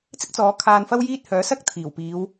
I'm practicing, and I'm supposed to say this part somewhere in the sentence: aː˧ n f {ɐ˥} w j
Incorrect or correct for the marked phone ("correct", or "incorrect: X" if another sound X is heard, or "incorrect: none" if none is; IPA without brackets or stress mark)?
correct